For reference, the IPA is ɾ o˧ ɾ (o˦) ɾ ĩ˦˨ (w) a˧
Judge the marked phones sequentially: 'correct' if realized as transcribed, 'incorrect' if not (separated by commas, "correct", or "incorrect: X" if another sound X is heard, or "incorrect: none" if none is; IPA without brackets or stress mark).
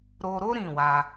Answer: correct, correct